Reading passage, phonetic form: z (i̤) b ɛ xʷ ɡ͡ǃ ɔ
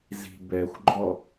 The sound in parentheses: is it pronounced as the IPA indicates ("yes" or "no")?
yes